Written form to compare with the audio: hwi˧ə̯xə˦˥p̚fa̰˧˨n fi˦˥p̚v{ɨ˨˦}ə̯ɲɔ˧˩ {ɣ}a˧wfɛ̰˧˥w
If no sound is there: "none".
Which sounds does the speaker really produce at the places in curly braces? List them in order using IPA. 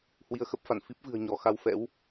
ɨ̤˨˩, x

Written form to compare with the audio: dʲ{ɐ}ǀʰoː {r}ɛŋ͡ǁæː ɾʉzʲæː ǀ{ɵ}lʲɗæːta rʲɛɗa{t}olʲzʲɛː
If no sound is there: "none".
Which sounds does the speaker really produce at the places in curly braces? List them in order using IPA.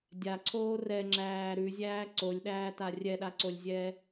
a, r, o, ǀ

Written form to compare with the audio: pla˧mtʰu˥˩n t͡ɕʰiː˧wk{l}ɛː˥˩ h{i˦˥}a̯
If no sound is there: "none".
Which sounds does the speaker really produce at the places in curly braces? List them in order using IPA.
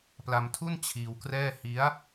r, i˦˥

